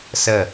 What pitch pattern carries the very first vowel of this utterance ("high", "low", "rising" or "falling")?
falling